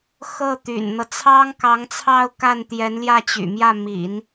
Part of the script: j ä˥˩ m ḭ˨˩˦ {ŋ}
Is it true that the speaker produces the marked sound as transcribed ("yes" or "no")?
no